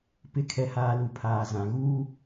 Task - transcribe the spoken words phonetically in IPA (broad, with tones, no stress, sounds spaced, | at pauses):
p ɪ˨˦ kʰ ɛ˨ h aː˨ l u˨ pʰ aː˨ z ã˨ ɣ uː˦